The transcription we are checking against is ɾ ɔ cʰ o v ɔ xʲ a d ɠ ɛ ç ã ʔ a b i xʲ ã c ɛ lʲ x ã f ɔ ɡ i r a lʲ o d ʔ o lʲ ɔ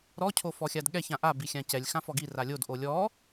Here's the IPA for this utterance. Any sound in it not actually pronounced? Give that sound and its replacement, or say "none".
v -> f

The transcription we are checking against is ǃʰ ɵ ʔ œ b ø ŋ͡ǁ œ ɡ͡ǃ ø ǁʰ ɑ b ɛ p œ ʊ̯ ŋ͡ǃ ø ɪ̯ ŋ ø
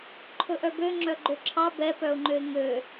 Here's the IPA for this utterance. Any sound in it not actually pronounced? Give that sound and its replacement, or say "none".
none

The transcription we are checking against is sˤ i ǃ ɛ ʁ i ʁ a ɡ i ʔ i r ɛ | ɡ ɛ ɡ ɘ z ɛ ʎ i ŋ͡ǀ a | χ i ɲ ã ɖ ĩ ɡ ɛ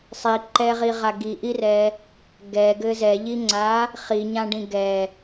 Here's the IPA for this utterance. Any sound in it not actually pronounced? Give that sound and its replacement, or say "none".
none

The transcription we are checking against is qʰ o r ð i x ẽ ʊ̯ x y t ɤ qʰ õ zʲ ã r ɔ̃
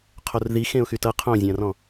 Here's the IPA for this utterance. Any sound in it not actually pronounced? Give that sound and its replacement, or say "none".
none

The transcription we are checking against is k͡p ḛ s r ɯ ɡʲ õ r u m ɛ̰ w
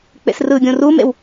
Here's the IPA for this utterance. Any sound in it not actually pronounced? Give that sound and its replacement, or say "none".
ɛ̰ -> ḛ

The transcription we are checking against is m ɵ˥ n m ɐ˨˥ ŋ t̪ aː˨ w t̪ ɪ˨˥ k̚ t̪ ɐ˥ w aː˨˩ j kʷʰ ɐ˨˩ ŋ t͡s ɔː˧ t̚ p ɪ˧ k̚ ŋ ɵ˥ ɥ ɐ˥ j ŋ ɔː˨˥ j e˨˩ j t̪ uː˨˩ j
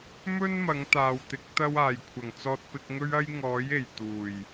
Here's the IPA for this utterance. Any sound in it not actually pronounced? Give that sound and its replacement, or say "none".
none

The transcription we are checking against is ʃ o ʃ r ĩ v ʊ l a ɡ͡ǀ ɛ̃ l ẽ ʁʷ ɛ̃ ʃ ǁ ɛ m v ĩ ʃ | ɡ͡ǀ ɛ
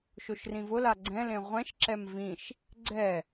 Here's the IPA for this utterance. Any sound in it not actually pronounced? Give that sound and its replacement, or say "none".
none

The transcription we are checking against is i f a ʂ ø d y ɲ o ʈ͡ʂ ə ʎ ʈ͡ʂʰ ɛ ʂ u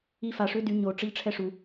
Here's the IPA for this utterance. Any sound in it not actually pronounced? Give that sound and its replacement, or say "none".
none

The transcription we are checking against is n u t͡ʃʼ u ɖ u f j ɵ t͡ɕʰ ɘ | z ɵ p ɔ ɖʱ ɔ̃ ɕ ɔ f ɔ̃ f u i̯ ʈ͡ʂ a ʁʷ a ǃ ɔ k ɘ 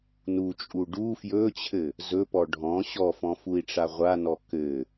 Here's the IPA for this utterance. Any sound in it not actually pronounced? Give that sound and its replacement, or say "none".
ǃ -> n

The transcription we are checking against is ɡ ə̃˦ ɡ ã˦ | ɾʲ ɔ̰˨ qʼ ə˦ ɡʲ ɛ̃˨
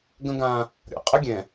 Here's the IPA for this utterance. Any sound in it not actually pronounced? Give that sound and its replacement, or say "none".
none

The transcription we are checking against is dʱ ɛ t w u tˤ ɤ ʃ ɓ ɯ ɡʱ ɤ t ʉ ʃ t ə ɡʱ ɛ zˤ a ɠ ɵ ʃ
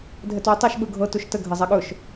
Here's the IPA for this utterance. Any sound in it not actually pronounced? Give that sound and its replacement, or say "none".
ʉ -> u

